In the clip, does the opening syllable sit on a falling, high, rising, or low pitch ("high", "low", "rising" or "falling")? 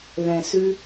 low